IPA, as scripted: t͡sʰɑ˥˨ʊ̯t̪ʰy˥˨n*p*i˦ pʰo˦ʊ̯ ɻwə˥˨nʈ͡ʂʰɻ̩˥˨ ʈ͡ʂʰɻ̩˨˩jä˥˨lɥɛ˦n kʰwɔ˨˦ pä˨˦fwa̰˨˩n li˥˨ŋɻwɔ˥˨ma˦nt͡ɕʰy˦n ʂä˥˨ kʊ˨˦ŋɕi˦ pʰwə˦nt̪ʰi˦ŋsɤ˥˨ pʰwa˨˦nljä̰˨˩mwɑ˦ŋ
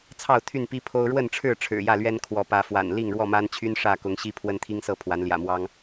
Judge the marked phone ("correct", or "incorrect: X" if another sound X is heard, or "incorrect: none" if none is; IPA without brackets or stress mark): correct